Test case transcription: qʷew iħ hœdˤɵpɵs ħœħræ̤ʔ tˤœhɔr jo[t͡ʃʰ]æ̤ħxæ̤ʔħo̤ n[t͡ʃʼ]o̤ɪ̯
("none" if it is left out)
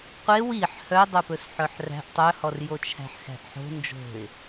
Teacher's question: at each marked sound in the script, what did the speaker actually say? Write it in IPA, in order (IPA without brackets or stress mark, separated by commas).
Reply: t͡ʃʰ, d͡ʒ